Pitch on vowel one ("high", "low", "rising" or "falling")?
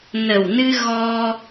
low